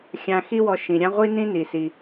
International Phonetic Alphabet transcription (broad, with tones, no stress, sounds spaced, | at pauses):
xʲ ã˧ x i˥ w ɔ˧ ʃ ĩ˩ ɾʲ ã˥ ʁʷ i˥ n ĩ˥ n i˩ s i˩